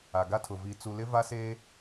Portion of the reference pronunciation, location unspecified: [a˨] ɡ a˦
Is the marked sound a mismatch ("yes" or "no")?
no